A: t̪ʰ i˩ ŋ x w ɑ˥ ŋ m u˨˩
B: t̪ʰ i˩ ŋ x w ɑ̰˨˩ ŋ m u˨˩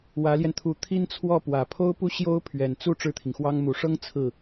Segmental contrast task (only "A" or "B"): A